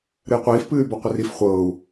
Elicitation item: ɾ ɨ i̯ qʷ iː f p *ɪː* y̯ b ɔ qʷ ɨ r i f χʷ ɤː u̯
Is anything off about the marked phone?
yes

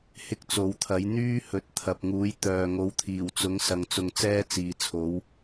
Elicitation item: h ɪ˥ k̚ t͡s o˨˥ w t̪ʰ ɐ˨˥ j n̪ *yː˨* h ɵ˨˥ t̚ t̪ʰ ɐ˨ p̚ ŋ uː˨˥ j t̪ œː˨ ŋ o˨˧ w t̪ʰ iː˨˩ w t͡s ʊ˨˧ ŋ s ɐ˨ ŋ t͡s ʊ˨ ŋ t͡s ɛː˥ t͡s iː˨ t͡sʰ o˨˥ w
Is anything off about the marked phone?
yes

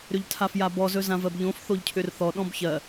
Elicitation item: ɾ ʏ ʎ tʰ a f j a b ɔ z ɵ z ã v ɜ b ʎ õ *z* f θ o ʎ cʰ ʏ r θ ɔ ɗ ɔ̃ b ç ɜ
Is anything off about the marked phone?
yes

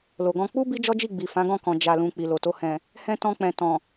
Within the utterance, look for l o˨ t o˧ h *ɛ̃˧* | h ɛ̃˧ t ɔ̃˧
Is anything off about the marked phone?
yes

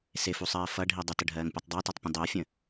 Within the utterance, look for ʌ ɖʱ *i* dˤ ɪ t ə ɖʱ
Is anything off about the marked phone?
no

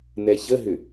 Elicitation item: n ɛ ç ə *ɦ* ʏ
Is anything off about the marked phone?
no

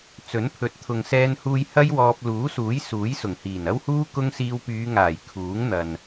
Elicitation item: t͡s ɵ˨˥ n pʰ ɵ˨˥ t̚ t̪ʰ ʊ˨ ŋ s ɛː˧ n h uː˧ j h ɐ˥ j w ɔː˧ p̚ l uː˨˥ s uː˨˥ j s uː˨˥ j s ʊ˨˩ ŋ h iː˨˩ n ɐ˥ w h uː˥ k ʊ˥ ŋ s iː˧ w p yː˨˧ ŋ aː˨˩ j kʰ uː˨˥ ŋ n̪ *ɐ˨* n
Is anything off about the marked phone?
no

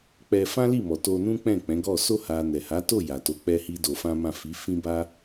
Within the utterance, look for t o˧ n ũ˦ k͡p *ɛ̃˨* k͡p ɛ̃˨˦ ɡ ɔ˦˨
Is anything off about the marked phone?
yes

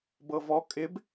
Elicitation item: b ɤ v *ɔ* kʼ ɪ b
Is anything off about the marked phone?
no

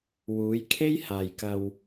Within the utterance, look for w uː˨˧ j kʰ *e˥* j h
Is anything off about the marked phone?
no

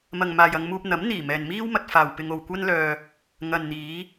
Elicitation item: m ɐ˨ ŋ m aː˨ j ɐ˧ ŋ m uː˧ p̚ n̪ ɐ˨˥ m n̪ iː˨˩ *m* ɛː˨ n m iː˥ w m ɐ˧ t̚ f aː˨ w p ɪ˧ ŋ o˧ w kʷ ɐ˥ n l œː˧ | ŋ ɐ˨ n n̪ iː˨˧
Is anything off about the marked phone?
no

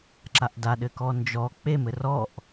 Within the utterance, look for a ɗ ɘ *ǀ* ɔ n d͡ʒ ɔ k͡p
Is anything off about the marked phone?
yes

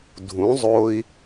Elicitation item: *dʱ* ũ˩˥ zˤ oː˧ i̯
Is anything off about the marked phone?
no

